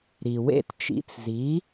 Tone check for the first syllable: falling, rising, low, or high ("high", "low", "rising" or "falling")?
low